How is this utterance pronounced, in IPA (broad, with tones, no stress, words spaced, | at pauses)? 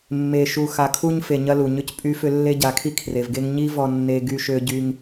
mːe˨ʃu˨ xa˨kʰu˦ɲfe˨ɲɐ˦ lu˨ɲʏ˦cpʼy˦fʏ˦ lːe˦ɟa˨˦kʰi˦ kʰre˨vɡe˦ŋ ɲi˦ vɔ˦nːe˦ ɡy˦ʃø˦ɟy˦ŋ